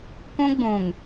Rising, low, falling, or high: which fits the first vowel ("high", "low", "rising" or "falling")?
high